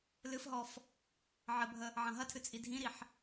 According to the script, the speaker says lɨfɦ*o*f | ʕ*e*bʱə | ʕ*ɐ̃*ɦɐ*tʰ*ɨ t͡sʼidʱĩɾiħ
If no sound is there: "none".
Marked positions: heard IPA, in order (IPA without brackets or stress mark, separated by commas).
ɔ, ɘ, ɐ̃, tʰ